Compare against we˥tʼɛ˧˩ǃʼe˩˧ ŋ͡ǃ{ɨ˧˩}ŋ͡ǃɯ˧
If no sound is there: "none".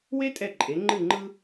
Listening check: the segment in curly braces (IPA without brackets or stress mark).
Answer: ɨ˧˩